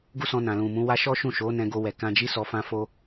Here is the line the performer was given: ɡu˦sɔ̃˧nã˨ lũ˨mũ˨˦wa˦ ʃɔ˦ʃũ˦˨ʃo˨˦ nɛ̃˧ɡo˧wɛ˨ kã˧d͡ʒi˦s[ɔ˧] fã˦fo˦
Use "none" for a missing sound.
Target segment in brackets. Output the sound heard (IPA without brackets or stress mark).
ɔ˧